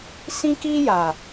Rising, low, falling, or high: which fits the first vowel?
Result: high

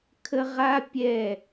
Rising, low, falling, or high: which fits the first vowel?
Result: high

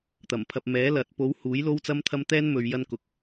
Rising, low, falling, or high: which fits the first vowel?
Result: low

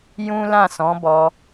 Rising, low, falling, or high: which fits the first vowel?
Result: high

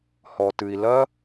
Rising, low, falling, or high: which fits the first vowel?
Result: low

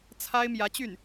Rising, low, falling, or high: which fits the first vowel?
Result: high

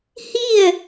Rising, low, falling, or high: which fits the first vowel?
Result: falling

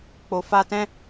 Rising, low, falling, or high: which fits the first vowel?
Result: low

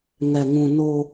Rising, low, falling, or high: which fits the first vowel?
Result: low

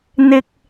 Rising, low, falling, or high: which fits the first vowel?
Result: low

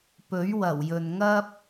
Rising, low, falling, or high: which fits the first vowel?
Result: rising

